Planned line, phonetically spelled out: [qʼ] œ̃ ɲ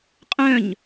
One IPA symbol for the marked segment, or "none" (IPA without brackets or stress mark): qʼ